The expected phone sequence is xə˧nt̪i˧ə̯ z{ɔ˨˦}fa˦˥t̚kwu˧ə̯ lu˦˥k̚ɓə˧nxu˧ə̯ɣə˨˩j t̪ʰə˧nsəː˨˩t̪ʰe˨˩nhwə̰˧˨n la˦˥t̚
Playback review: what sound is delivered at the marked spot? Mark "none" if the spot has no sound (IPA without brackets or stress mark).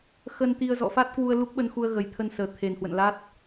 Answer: ɔ̰˧˨